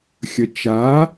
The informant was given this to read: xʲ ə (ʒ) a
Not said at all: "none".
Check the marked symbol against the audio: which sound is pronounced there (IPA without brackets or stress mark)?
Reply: t͡ʃ